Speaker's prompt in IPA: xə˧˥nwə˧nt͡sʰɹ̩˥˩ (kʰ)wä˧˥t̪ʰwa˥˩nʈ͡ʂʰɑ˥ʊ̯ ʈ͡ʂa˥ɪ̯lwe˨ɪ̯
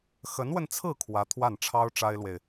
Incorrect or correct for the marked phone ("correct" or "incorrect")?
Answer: correct